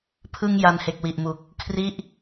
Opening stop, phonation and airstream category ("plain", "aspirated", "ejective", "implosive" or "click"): aspirated